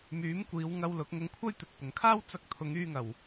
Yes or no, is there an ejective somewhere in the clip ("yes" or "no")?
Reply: no